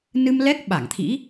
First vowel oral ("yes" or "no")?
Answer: yes